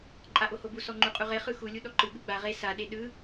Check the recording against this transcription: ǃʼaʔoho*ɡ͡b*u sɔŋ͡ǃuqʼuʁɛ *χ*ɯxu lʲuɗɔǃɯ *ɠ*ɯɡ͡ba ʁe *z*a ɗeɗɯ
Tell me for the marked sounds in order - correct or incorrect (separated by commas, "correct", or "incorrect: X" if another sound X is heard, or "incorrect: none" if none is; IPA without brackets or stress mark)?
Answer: incorrect: b, correct, correct, incorrect: s